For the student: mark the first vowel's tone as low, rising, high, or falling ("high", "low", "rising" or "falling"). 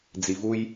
low